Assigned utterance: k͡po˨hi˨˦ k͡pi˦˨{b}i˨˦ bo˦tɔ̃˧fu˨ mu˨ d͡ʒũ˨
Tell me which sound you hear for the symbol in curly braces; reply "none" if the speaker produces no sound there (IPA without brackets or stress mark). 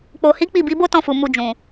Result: b